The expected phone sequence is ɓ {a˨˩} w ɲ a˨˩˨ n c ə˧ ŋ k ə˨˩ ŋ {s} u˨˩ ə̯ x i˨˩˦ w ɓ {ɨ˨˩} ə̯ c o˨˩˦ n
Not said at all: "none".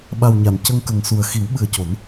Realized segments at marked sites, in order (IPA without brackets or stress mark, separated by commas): a˨˩, s, ɨ˨˩